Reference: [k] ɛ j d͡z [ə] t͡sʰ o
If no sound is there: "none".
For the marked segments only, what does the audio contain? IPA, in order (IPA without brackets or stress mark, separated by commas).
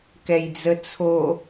k, ə